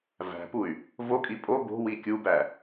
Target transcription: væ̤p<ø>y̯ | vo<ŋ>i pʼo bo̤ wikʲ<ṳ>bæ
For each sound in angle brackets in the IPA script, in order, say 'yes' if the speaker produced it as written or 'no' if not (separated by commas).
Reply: no, no, no